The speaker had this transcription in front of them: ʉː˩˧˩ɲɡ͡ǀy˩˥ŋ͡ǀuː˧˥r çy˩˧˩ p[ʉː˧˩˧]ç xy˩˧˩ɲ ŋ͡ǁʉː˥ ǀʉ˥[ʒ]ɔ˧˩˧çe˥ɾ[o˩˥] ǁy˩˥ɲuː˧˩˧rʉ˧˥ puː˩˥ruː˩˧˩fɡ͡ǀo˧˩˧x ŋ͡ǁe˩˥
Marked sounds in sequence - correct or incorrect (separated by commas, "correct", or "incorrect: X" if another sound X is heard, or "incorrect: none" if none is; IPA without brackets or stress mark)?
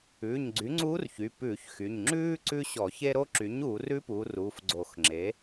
correct, incorrect: ɕ, incorrect: o˥